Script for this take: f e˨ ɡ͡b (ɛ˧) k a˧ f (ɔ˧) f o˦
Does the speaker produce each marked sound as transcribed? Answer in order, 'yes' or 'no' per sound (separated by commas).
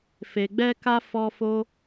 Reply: yes, yes